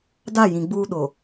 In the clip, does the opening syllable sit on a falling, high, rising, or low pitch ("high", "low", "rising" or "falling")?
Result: falling